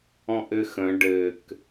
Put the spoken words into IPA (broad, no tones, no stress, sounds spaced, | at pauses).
ɔ̃ ʔ ɘ x ə̃ ɖ ɘ k